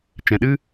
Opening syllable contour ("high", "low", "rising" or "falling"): low